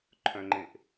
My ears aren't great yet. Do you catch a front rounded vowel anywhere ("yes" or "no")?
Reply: yes